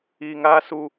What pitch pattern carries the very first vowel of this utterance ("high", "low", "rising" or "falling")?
low